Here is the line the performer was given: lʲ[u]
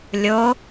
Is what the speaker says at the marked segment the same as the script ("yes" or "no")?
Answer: no